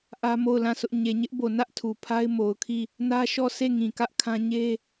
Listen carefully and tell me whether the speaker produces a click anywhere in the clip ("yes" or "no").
no